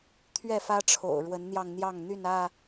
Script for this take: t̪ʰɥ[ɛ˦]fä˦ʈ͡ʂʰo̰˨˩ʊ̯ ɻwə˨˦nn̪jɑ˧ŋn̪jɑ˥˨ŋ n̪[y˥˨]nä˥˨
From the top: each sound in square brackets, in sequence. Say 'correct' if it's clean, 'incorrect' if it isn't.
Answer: incorrect, correct

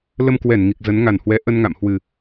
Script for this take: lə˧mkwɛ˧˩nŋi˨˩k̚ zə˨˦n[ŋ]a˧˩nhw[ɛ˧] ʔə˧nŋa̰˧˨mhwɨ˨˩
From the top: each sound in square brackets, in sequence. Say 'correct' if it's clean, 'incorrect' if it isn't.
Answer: correct, incorrect

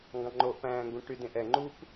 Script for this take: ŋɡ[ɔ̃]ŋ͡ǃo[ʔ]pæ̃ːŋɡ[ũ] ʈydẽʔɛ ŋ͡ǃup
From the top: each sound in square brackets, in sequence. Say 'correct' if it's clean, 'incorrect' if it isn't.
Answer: incorrect, correct, correct

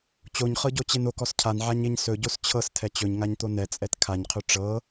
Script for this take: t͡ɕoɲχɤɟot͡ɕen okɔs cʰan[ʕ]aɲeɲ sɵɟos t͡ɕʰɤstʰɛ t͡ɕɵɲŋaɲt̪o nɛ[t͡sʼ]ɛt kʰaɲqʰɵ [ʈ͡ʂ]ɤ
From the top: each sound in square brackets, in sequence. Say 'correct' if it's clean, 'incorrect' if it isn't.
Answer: correct, correct, correct

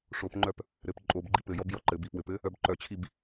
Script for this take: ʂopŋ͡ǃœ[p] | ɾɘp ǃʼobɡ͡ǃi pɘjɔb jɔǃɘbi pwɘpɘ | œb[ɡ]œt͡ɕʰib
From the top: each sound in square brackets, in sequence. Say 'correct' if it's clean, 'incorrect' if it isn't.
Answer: correct, incorrect

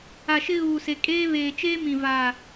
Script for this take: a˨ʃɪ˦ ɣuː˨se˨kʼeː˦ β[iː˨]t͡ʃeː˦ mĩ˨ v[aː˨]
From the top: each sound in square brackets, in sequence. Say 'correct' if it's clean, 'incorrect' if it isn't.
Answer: incorrect, correct

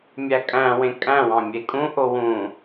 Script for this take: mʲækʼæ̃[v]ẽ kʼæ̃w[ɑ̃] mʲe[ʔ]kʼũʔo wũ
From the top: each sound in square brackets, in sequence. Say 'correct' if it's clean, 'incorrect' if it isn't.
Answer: incorrect, correct, incorrect

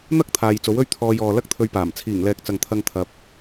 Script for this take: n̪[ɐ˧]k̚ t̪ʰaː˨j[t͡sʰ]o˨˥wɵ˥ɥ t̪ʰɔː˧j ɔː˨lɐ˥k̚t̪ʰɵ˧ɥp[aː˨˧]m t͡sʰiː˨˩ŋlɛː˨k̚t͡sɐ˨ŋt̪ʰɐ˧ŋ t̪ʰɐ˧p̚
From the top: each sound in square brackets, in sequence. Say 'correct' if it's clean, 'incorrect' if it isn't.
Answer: incorrect, incorrect, incorrect

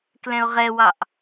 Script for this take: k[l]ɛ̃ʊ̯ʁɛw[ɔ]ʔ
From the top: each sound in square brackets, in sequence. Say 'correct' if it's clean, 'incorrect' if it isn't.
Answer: correct, incorrect

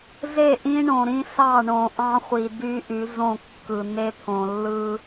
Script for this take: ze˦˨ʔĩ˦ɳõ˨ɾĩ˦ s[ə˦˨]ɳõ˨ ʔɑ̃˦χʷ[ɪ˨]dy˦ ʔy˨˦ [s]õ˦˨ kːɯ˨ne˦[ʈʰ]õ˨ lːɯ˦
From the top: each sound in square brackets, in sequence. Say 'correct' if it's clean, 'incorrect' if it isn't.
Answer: incorrect, incorrect, incorrect, incorrect

